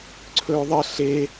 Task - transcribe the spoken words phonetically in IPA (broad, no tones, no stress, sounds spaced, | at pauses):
ǀʰ ɵː ðˤ ə ɬ e